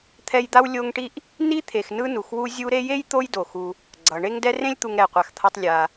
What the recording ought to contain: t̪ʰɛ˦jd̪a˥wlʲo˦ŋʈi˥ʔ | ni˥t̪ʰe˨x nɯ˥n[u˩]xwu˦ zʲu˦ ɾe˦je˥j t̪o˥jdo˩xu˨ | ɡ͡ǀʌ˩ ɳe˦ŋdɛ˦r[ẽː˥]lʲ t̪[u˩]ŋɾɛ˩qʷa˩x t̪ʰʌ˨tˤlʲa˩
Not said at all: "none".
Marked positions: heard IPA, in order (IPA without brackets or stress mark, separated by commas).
u˩, ẽ˥, u˨